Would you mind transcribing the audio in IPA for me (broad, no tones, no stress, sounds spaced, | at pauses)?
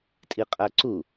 tʼ i qʼ æ ǀ u